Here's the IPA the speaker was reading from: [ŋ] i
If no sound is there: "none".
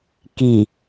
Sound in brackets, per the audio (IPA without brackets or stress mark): k